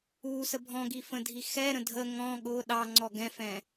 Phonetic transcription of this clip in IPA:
u s ə bʱ ɔ̃ ɡ i f ə̃ dʱ i x ɛ ɾ ə̃ dʱ ə ŋ ɔ̃ ɠ ʊ ɗ ɑ ŋ͡ǀ ɔ ɡ ɛ̃ f ɛ̃

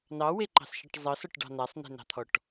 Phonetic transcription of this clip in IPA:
n ɑ w e ǃ ɑ̤ s ʃ ə ʈ zˤ ɤ s ɔ ʈ ɖ ɑ̤ n a sˤ n e̤ n ɑ̤ t̪ʰ ɔ ʈ

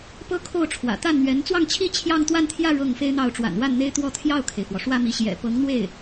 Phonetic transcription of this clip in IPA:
p ɤ˥ kʰ o˥˩ ʊ̯ ʈ͡ʂʰ w ä̰˨˩ t̪ a˥˩ n n̪ ɥ ɛ˧˥ n t͡s w ɑ˥˧ ŋ t͡ɕʰ i˥˧ t͡ɕʰ j ɑ˥˧ ŋ t̪ w a˥˧ n t̪ʰ j ä˥˧ ɻ ɤ˥˩ ŋ f e˥ ɪ̯ n̪ ɑ˥˩ ʊ̯ ʈ͡ʂ w a̰˨˩ n w a˥˩ n n̪ e˥ ɪ̯ t̪ w ɔ˥˧ t̪ʰ j ɑ˥˩ ʊ̯ kʰ e˩ ɪ̯ f w ɔ˩ ʂ w ä˥˧ m i˥˩ ɕ j ɛ̰˨˩ p ɤ˧˥ ŋ n̪ w e˥˩ ɪ̯

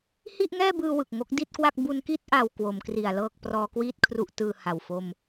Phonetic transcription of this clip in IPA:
h i˥˩ ʔ ŋ ɛː˥˩ b ɯː˧ w ɯ˨˩ k̚ ŋ o˦˥ k̚ d i˥˩ t̚ k w a˥˩ k̚ b u˧ n k i˥˩ t̚ ʔ a˧ w k w o˩˦ m k r i˨˩ a̯ l ɤː˥˩ k̚ p r ɔː˧ k w iː˥˩ t̚ kʰ r u˦˥ ʔ t ɯː˧ h a˨˩ w f o˧ m

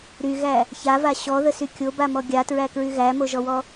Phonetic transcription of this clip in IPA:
ɾ y ɣ æ | ç a v a ɕ ɔ ð ə s y kʲ o b a m ɔ ɡʲ a t ɹ æ k ɹ y ɣ æ m o ʒ ɔ w ɔ

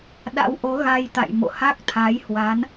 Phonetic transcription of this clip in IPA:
ɗ a̰˧˥ w ʔ o˨˦ ɣ a˧ j t̪ a̰˧˨ j m o̰˧˨ h a˦˥ k̚ t̪ʰ a˨˦ j h w a˨˦ n

